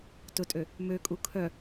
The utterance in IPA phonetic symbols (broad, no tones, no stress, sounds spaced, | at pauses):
t ʊ tʼ ø | m ø kʼ u kʰ œ